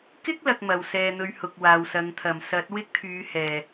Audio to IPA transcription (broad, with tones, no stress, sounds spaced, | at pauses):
k ɪ˥ k̚ l ɐ˨ k̚ m ɐ˨ w s ɛː˧ n̪ ɵ˧ ɥ h ʊ˨ k̚ w aː˨ w s ɐ˨˧ ŋ t̪ʰ ɐ˨˩ m s ɐ˨˥ t̚ w ɪ˥ k̚ t̪ʰ yː˨˧ h ɛː˨˩